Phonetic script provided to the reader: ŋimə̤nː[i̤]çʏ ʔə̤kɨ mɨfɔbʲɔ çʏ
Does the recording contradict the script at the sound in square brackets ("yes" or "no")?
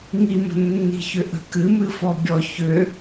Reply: no